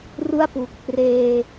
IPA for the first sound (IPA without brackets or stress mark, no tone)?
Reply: r